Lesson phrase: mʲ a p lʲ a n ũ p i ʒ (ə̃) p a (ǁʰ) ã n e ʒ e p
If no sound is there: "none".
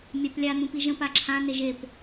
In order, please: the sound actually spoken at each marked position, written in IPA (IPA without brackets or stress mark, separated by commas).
ə̃, ǁʰ